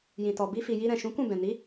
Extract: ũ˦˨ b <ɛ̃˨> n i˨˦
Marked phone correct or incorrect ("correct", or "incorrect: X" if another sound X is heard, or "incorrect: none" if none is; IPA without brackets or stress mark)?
correct